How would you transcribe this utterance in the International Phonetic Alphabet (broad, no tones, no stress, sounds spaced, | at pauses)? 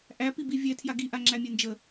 ʔ æ p i b i vʲ ɛ tʰ j a ɡ i ʔ a ŋ͡ǁ æ mʲ ɛ n d͡ʒ ə